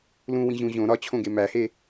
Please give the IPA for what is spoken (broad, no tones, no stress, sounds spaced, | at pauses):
l ũ w ĩ ʑ ũ ʑ õ ɾ ɒ t͡ɕʰ õ ɡ e m æ h e